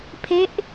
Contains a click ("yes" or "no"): no